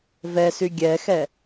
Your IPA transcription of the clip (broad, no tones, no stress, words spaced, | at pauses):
vɛsy ɡʲɛxɛ